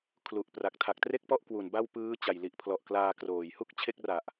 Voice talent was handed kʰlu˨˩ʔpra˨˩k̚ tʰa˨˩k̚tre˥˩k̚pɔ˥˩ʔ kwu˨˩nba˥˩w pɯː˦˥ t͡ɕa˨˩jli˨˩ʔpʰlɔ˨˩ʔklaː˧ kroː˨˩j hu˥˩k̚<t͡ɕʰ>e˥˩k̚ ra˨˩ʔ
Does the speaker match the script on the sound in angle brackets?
yes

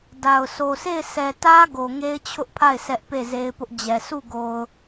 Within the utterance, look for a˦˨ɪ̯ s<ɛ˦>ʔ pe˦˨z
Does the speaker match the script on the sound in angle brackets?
yes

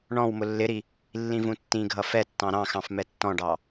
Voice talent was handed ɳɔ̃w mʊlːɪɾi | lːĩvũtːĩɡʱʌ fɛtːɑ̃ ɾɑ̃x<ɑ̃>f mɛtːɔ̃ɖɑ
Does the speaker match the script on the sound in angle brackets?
yes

